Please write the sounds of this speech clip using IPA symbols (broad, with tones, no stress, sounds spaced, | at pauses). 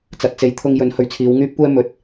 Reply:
t͡s ɐ˨ t̚ t͡s e˨˥ j t̪ʰ ʊ˧ ŋ j ɵ˨˥ n h ɵ˨˥ ɥ t͡sʰ iː˨˧ w ŋ yː˥ p̚ kʷ ɛː˥ m ɵ˨˥ t̚